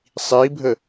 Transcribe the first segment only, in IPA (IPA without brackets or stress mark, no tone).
sˤ